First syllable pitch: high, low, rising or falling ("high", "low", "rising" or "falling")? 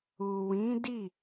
low